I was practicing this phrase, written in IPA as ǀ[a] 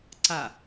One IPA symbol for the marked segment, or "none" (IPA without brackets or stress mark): a